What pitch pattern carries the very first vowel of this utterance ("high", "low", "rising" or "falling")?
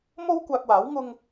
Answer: high